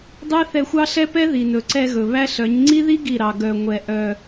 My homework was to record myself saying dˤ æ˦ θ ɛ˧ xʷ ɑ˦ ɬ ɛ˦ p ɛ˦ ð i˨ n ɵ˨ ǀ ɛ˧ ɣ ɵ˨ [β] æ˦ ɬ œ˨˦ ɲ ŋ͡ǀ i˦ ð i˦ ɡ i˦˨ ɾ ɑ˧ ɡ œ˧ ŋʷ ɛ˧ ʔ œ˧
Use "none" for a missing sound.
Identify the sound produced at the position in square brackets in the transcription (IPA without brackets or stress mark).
β